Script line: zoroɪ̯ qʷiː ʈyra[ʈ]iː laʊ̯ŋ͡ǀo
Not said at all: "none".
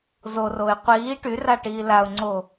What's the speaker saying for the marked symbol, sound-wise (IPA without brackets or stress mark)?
ʈ